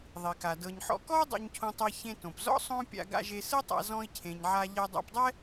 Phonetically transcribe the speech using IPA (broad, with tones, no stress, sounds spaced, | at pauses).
ðˤ i˩ k a˩ d ɤ˩ ɲ ħ ɔ̰˧ k ɔ˥ u̯ dˤ o̰˧ ɲ cʰ õ˧ tˤ ɛ˧ ç ẽ˧ t õ˩ p z ɔ̰˥ sˤ õ˥ pʲ a̰˧ ɡ a̰˧ ʒ e˧ s ɯ˥ tˤ a̰˧ z ɔ̃˧ i̯ cʰ ẽ˩ ɲ ʕ a˧ ʎ ɛ˧ dˤ a̰˧ p dˤ ɛ˥